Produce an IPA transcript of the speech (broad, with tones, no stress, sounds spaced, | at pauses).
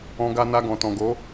ɔ̃˧ ɡ a˧ n a˧ ɡ ɔ̃˨ t ɔ̃˨ ɡ o˨˦